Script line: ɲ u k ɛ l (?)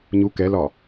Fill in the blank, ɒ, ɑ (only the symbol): ɒ